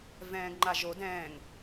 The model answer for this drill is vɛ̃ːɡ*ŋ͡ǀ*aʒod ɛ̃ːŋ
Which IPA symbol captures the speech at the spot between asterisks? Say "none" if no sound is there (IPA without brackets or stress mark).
ŋ͡ǃ